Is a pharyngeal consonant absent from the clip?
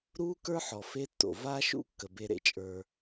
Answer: no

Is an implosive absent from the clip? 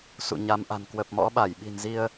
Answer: no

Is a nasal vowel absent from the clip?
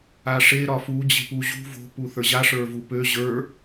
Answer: yes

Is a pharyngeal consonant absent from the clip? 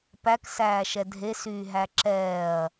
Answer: yes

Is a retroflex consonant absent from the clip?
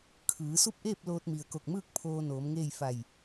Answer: yes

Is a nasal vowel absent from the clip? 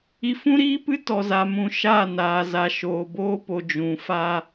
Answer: no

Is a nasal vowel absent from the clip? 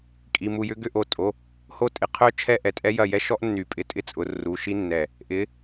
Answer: yes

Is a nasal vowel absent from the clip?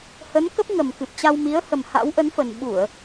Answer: yes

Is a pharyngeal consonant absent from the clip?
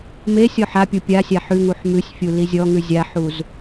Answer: no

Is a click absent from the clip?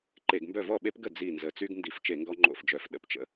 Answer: no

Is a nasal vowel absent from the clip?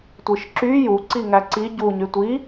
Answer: yes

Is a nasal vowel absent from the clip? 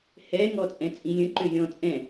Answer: no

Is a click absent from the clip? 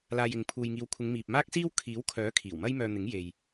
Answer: yes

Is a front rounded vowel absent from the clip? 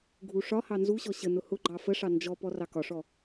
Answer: yes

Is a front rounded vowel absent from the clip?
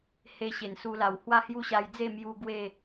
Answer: yes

